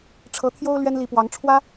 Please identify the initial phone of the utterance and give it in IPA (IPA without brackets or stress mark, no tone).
ʈ͡ʂʰ